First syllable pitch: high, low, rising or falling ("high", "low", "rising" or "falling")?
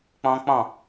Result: high